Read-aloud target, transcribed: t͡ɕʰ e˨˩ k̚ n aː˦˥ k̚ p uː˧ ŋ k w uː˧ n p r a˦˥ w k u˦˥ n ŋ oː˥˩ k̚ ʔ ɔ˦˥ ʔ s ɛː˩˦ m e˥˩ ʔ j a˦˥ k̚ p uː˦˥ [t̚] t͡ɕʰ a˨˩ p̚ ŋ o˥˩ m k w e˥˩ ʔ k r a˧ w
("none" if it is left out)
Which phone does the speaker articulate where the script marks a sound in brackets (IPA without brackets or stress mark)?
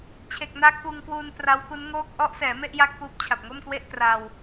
p̚